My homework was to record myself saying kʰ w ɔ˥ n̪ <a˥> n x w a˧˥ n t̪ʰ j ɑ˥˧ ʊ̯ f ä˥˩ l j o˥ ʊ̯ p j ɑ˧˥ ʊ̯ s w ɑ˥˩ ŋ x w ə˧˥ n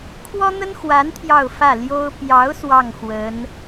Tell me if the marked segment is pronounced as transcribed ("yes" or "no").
no